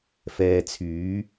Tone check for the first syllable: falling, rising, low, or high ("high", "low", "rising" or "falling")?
low